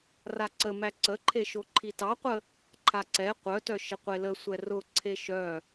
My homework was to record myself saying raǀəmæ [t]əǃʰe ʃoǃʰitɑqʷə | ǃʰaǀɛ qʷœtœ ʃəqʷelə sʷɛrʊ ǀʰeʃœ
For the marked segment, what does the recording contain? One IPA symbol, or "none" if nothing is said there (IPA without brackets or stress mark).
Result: ǀ